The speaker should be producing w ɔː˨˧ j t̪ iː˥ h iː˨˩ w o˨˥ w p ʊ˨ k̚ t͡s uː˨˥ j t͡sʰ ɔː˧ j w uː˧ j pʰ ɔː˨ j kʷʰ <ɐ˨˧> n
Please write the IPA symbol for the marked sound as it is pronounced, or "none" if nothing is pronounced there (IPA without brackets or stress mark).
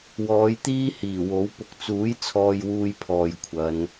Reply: ɐ˨˧